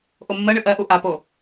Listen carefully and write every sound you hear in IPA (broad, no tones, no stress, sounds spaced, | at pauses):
ʔ o mː ɜ ɳ ɨ ʔ ɜ ʔ u ʔ a p o